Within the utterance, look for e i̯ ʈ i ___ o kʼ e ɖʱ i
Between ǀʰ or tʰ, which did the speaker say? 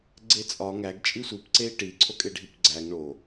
ǀʰ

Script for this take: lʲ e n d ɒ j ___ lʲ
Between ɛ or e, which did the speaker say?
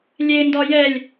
ɛ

